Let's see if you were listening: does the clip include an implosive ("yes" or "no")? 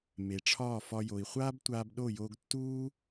yes